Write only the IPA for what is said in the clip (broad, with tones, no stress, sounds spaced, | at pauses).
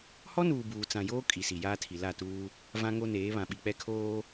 h ɔ˦ n uː˨ b uː˨ t͡s ã˨ j oː˦ kʼ i˨ s i˨ j aː˦ tʰ i˨ l a˦˨ t uː˦ | v ã˦ ŋ o˦ n eː˨˦ β ã˨ ɓ i˨ k͡p ɛ˦ kʰ oː˦